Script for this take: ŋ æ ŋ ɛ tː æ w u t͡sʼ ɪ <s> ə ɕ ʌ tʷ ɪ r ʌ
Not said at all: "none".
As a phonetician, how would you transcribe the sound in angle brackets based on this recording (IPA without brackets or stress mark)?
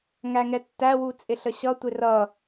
ɬ